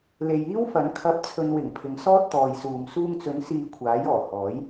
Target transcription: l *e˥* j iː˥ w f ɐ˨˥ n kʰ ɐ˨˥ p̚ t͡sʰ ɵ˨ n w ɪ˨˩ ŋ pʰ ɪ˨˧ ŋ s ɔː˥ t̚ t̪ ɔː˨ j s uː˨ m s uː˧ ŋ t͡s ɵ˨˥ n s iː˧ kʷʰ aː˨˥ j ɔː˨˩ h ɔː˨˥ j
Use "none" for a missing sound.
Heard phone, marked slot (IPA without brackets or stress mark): e˨